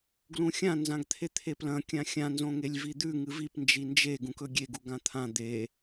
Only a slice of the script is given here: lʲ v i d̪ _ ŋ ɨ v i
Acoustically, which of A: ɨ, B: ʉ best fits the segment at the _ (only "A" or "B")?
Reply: B